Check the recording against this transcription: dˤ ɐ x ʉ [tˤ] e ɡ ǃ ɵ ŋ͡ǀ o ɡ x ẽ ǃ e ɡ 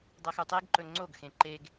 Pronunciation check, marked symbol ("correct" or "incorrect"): correct